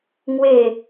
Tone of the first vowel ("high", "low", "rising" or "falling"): falling